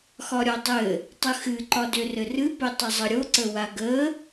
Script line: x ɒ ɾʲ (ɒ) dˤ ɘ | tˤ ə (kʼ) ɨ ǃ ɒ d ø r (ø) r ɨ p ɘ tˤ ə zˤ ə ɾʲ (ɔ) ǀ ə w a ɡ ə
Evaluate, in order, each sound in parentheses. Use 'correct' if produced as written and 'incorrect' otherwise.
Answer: correct, incorrect, incorrect, incorrect

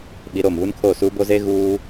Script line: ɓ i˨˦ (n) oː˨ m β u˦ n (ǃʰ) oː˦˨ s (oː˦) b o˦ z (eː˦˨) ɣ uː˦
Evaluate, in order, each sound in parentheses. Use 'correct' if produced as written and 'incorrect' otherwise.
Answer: incorrect, incorrect, incorrect, incorrect

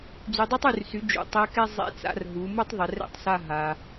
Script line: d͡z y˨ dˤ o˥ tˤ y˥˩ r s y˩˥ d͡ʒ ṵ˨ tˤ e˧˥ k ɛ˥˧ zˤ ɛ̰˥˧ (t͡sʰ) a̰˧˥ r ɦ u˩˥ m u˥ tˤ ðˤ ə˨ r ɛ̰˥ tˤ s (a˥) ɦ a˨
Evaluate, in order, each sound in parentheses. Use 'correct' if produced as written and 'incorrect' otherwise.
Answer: incorrect, incorrect

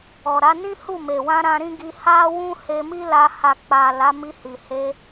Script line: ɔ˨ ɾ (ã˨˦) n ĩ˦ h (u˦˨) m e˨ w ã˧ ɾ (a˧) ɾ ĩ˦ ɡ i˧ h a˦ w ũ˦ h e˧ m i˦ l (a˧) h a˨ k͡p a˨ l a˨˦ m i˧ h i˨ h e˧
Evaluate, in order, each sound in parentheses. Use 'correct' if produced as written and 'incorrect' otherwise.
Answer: incorrect, correct, incorrect, correct

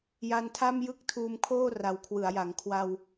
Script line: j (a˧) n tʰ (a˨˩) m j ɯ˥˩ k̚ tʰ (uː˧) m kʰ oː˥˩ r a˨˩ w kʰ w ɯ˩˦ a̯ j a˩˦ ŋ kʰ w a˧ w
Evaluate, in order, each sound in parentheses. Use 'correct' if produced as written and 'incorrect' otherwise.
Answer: correct, incorrect, correct

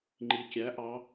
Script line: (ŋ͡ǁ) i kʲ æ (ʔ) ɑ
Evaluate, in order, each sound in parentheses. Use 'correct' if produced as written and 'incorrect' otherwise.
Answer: incorrect, correct

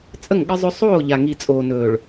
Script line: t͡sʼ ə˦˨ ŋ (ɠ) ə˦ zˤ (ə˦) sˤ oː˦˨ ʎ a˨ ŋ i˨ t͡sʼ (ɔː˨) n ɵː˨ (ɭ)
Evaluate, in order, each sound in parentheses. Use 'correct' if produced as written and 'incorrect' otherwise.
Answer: correct, incorrect, incorrect, correct

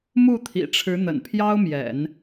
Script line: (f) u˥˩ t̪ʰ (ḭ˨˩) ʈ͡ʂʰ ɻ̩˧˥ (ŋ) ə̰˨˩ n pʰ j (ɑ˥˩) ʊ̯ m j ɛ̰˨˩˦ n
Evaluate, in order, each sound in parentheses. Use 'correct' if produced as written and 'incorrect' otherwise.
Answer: incorrect, correct, incorrect, incorrect

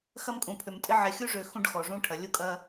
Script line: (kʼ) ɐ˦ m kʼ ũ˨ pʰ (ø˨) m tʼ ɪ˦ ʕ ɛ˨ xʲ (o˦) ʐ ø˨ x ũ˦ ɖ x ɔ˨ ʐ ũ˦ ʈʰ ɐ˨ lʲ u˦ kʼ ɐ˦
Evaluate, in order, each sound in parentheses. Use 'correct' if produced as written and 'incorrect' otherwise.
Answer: incorrect, correct, incorrect

